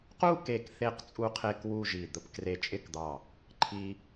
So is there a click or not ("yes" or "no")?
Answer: yes